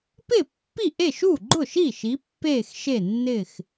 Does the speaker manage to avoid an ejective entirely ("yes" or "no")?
yes